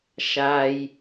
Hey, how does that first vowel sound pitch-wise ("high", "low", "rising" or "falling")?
low